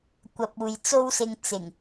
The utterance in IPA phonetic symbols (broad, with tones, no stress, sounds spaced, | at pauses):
kʷ ɐ˧ p̚ uː˨ j t͡s o˥ w s ɪ˧ ŋ t͡s ɪ˨˩ ŋ